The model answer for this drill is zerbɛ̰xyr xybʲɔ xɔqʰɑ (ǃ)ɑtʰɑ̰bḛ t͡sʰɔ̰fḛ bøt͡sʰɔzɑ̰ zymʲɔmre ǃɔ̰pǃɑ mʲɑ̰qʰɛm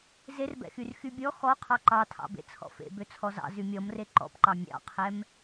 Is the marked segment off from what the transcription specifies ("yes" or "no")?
no